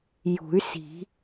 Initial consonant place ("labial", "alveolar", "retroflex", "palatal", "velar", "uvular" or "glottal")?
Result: palatal